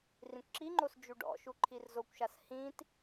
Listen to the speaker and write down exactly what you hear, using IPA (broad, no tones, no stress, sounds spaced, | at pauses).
r ĩ kʷ ǁ i ŋ͡ǃ o s d͡ʒ u ɖ ɔ̰ ʃ u ǃʰ i r z o kʷ ʃ a s h ĩ t